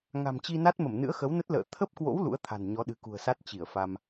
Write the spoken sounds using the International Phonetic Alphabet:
ŋ a̤˨˩ m t͡ɕ i˧ n a˦˥ t̚ m ə˧˩ m n ɨ̰˧˥ ə̯ x ə˨˦ w n ə˦˥ t̚ l ə̰ː˧˨ t̪ʰ ə˦˥ p̚ k w o̰˧˥ w l ṵ˧˥ ə̯ t̪ʰ a̤˨˩ n ɲ ɔ˨˦ ɗ ɨ̤˨˩ k ṳ˨˩ ə̯ s a˦˥ t̚ t͡ɕ i˧˩ ə̯ f a˧ m

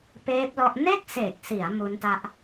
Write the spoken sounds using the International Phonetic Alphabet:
p eː˦˥ p̚ l ɔ˦˥ ʔ n e˥˩ k̚ s e˨˩ k̚ s i˩˦ a̯ m u˦˥ n t a˦˥ ʔ

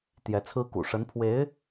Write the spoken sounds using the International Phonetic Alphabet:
t̪ j ɛ˧˥ t͡sʰ ɹ̩˥ k ṵ˨˩ ʂ ə˧˥ n pʰ w e˧˥ ɪ̯

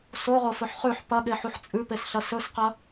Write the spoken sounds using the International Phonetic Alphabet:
s o ʁ o f ɵ ħ χ ʉ ħ p ɐ ɠ e ħ u ħ t͡sʼ ʉ p e s ɬ ɐ s ɵ s q ɐ

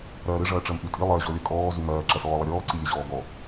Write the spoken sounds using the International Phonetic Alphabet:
ɾ ɐː ɾ ɘ ʐ ɐː ʈ͡ʂ ɜ m ʔ y tʼ i lˠ ɜ ʑ ɔ lʲ ɐ kʼ ɔː z y m ɐː ǁ ɐ s ɔː lˠ ɐ ɾʲ ɔː ǀ i lʲ ɘ ʑ ɔː ɡ ɔ

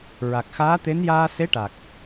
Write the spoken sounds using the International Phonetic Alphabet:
ɹ a˨˩ k̚ x aː˧˥ t̪ e˧˥ n j aː˧ s e˧˥ ʈ a˨˩ k̚

